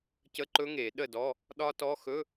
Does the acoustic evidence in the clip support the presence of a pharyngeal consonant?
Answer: no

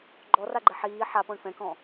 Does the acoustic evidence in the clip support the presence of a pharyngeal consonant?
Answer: yes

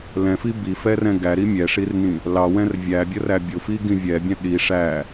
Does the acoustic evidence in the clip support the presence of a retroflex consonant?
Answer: yes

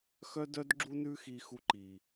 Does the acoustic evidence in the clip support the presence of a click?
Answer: yes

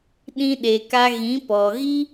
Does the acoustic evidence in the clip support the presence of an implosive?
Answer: yes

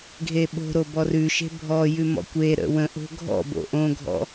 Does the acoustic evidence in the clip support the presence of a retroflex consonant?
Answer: no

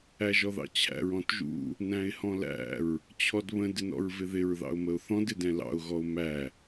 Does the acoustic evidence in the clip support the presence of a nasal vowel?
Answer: yes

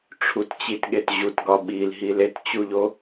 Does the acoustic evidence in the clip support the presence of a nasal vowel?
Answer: no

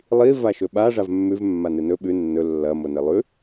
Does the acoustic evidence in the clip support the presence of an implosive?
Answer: yes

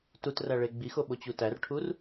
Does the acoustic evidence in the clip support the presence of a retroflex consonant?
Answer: yes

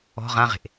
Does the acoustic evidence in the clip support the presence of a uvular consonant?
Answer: yes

